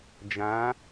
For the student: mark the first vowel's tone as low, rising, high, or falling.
rising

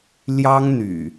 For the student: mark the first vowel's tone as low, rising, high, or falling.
high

